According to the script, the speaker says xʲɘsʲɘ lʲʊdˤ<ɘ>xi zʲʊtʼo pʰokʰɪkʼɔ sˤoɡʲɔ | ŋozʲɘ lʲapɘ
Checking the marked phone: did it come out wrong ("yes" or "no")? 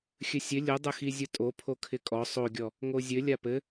no